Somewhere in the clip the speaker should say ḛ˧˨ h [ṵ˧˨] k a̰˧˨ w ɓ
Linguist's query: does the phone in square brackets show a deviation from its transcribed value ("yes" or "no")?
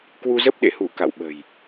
yes